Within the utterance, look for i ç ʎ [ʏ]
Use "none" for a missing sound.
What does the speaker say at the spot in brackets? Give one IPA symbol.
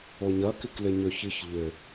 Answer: ʏ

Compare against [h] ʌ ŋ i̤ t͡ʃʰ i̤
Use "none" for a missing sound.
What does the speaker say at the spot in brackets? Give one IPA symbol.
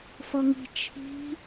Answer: f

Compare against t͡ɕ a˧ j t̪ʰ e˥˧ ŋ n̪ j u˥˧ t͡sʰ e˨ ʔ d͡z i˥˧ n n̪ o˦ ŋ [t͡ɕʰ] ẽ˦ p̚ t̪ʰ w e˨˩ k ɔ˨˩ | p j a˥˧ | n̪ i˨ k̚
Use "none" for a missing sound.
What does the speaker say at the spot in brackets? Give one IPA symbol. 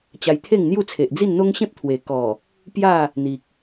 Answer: ɕ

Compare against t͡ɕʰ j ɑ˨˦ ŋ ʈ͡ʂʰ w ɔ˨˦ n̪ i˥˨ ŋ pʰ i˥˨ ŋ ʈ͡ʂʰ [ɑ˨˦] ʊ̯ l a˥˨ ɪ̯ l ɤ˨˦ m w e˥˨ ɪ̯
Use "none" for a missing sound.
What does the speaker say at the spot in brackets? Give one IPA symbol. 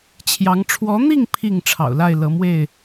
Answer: ɑ̰˨˩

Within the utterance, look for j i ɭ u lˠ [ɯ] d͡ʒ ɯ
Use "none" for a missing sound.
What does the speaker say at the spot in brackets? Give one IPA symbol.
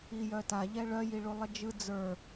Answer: ə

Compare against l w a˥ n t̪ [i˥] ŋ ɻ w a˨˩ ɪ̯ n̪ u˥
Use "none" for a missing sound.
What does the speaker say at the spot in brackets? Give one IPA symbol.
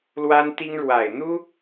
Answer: i˥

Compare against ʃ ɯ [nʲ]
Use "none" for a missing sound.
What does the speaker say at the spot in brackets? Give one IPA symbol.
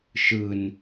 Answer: n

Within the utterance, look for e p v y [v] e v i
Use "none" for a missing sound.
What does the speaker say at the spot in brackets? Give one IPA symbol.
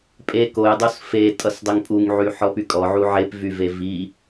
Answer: v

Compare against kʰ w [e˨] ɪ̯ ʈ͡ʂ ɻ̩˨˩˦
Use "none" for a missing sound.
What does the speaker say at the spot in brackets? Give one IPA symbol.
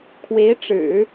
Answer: e˧˥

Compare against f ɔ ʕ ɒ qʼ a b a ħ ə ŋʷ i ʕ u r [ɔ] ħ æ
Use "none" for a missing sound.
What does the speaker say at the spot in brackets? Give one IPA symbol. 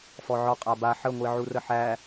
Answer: ə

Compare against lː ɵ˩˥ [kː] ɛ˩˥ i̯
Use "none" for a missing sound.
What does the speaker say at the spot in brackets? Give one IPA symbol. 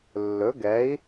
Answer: ɡ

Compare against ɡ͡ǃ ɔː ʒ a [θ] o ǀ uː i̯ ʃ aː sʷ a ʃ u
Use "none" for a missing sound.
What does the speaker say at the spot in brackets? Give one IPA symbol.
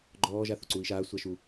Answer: θ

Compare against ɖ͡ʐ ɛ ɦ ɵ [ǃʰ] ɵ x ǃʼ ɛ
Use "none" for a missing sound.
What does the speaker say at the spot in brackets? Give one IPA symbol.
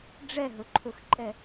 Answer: ǃʰ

